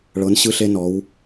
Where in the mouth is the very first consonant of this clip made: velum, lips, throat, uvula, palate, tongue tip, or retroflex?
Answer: retroflex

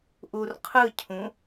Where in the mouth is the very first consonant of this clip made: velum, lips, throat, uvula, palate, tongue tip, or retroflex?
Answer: throat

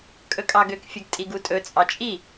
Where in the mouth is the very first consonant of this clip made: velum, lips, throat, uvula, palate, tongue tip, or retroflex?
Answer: velum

